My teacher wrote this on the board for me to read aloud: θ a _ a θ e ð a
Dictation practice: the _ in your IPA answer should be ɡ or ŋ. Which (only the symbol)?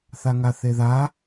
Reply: ŋ